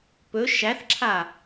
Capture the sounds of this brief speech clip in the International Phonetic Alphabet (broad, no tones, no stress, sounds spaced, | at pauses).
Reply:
p ɵ ʃ æ θ ǁʰ a